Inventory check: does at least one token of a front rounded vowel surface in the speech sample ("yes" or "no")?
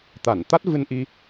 no